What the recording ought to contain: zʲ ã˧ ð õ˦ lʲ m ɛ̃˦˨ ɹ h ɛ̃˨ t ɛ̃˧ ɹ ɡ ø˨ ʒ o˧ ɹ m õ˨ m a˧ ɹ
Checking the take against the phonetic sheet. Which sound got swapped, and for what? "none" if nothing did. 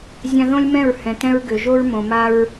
none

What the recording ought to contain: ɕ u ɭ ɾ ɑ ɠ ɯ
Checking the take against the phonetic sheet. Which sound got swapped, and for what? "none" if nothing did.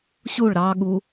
ɯ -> u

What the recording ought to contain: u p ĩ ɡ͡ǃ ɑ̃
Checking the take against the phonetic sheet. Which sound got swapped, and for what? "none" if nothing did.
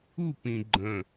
ɑ̃ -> ə̃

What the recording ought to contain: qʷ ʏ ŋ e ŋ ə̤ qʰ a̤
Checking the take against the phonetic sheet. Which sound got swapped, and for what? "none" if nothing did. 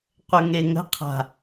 ʏ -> ə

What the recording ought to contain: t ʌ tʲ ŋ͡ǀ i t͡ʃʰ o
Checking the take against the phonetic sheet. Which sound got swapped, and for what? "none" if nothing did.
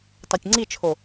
ʌ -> a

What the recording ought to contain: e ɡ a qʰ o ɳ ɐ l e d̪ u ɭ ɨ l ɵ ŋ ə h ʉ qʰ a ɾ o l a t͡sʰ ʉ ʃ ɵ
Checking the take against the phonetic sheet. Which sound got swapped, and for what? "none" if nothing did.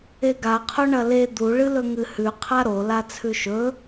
ə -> ɨ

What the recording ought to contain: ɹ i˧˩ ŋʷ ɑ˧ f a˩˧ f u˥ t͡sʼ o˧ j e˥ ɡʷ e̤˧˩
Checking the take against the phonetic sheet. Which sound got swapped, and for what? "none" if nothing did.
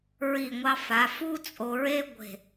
j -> ɹ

